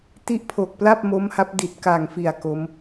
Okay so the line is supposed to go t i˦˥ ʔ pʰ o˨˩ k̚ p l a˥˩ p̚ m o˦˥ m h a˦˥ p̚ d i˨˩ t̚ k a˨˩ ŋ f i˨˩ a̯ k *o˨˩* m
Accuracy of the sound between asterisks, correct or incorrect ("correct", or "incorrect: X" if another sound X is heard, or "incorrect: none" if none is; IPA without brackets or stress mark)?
incorrect: o˦˥